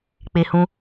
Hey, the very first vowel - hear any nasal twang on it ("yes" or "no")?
no